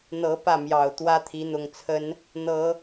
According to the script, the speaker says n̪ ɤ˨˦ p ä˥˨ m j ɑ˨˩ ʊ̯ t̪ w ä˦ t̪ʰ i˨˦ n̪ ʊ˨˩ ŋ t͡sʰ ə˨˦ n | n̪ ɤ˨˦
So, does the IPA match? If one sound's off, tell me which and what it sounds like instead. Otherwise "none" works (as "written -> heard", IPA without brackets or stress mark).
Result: none